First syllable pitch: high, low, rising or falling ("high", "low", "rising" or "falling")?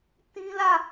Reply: high